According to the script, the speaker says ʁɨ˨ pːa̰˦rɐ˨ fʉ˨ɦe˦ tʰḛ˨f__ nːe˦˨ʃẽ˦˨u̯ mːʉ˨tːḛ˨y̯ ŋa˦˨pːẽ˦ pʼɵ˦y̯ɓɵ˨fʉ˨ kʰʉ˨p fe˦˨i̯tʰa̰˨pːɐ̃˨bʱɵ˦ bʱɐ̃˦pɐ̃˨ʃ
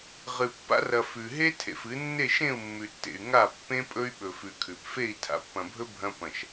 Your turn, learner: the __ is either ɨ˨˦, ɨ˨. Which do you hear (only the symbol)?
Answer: ɨ˨˦